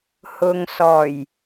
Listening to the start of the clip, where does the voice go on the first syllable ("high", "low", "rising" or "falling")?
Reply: low